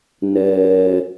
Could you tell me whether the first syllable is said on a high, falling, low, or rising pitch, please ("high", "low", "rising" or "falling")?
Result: low